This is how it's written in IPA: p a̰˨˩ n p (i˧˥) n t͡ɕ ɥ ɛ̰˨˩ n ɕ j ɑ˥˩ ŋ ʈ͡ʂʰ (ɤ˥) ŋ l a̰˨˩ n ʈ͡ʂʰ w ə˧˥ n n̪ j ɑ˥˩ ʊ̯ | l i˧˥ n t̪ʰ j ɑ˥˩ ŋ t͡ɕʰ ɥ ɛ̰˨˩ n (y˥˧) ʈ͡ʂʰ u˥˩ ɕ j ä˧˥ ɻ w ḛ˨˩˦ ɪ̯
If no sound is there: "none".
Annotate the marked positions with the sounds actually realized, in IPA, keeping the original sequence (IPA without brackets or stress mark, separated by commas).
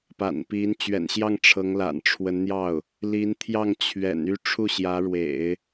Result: i˧˥, ɤ˧˥, y˥˧